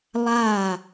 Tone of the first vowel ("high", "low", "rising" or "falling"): falling